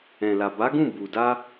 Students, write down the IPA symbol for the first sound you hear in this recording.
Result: ɛ̃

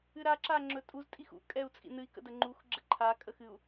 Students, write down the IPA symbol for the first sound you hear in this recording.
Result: ɨ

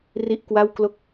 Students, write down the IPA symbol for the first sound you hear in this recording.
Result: r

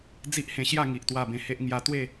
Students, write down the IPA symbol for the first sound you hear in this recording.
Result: d͡z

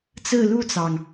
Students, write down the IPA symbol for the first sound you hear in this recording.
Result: t͡s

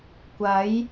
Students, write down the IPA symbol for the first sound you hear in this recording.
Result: kʷ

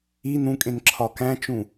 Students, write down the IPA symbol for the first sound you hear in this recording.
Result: i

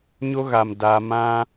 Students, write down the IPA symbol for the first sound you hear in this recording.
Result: ɲ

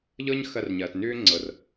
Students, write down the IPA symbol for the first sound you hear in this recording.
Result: ʎ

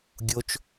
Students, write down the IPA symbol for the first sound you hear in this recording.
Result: ɡʲ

